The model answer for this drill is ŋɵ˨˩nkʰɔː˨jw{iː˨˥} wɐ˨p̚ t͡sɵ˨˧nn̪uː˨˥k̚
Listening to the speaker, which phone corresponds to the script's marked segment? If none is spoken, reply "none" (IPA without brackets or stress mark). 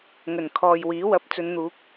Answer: iː˨˥